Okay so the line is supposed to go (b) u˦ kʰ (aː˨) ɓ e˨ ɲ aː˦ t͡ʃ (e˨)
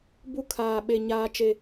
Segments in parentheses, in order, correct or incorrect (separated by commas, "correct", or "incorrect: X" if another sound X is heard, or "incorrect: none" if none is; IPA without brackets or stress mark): correct, correct, correct